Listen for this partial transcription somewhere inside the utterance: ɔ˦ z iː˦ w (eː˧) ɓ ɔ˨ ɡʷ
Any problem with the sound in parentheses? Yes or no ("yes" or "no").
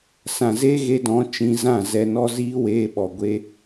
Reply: no